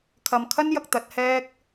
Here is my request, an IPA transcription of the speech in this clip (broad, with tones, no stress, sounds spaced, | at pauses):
kʰ ɐ˨ m kʰ ɐ˥ n j ɐ˧ k̚ t̪ ɐ˨˥ t̚ h ɛː˥ k̚